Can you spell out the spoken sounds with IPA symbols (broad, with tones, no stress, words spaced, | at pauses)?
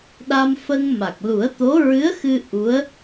ɗa˧mfə˧ŋma˨˩k̚ lu˨˩˦ə̯t̪o˧˥ ɹɨ˧˥ə̯xɨ˧ ʔu˧˥ə̯